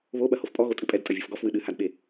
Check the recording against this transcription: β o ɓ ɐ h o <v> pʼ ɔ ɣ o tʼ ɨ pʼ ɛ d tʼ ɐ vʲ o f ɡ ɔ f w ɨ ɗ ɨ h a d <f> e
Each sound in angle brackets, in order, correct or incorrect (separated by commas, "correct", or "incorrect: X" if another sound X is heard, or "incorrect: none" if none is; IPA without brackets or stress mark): incorrect: f, incorrect: ɓ